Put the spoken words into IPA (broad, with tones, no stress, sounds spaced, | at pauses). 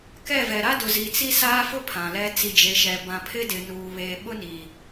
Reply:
k ɛ˦˨ v ɛ˨ ɾ a˦ d ʊ˨ z i˨ t͡s i˦ s aː˦ f ʊ˦ pʰ ã˨ l ɛ˦ t͡s i˨ d͡ʒ e˨ ʃ ɛ˨ b ã˨ pʰ ɪ˦ d ɪ˨ n uː˨ β eː˨ ɓ ʊ˦ n i˨